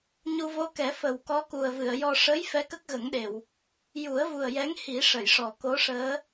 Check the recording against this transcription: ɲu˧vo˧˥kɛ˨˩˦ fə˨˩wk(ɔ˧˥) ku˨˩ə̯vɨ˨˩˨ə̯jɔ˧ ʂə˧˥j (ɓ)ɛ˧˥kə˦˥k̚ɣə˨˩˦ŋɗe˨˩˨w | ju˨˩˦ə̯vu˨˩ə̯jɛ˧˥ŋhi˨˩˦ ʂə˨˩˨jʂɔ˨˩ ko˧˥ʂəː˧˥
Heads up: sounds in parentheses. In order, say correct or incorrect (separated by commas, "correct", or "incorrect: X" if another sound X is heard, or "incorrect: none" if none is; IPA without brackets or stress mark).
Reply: correct, incorrect: f